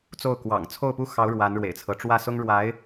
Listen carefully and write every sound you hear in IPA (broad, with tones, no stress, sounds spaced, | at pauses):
t͡s o˥˩ ʊ̯ k w ɑ̰˨˩ ŋ t͡sʰ o˥˩ ʊ̯ p u˥ x ɑ˧˥ ʊ̯ ɻ w a˧˥ n ɻ w ḛ˨˩ ɪ̯ t͡sʰ ɤ˦ ʈ͡ʂ w ä˥˩ s ʊ˥ ŋ ɻ w a˧˥ ɪ̯